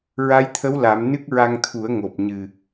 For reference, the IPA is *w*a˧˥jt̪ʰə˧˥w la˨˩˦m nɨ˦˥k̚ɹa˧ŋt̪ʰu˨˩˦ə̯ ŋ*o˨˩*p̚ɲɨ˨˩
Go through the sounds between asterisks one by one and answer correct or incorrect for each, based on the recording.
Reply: incorrect: ɹ, correct

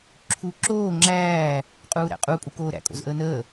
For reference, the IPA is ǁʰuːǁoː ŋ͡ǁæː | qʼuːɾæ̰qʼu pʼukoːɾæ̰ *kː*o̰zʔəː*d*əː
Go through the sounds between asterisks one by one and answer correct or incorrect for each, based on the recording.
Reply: incorrect: kʼ, incorrect: n

